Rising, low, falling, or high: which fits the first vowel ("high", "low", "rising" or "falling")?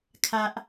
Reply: high